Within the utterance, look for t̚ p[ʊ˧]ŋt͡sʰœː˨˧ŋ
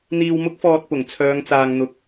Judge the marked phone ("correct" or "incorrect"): incorrect